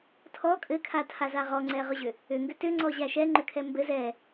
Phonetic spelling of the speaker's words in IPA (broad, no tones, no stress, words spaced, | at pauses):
tʰɔ kʼɘkʰatʰaza ʁɔŋ͡ǀɛ ʁʏʑʏ | ʏŋɡʏ tʏŋ͡ǀɔʑæ ʃɛŋ͡ǃʏkʰɛ mbɘ zɛ